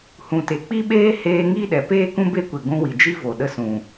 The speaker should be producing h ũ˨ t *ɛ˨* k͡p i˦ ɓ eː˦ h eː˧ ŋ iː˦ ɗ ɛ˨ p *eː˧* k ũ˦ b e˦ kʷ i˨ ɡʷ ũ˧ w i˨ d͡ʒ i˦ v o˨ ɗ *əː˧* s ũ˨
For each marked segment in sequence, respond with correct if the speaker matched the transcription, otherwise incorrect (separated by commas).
incorrect, incorrect, incorrect